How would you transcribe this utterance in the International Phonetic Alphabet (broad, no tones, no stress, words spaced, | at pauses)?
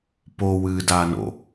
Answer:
po wɨːdaːno̰